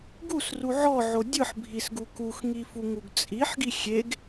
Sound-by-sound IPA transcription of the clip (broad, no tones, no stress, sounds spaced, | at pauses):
ɡ u s r u ʕ ɔ ʕ o dʲ ɯ ħ bʱ i s ɡ u k u x ŋ i f u ŋ u ɡ t͡sʼ i ħ ɡ i xʲ e ɡ